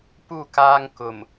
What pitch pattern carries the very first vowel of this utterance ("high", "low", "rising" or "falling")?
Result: falling